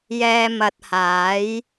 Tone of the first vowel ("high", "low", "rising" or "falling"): low